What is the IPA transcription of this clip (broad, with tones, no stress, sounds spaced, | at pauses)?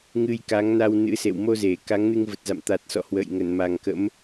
ŋ ɨ˧ j k a˨˦ ŋ n a˧ w n ɨ̰˧˥ s ḛ˧˨ w m o˧ z e˧˩ k a˨˦ ŋ n ɨ˧ ŋ v ə˨˩ t̚ z a̰˧˨ m t̪ a˨˩ t̚ s ɔ̰˧˨ h w ə̰ː˧˨ j ŋ ə˧˩ n m a˨˩ ŋ k ə̰˧˥ m